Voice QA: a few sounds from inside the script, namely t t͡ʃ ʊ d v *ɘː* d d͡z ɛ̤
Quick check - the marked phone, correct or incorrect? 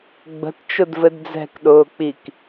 incorrect